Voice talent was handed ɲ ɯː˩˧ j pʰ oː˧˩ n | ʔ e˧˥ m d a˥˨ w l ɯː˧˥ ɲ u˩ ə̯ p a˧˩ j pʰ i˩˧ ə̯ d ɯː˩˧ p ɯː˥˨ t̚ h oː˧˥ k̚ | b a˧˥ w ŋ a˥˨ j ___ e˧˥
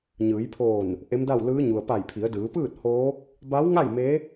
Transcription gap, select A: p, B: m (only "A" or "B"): B